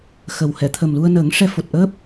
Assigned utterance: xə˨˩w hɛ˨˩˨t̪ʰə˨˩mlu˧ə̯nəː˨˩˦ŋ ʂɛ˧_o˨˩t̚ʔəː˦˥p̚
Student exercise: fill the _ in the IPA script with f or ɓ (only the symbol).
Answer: f